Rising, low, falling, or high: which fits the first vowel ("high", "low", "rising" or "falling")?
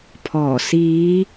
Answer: low